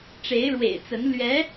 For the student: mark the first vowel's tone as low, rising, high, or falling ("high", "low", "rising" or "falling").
rising